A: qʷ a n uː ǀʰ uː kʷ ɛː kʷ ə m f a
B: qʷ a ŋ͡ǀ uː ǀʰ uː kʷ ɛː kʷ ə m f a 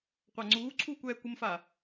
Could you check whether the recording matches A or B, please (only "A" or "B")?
B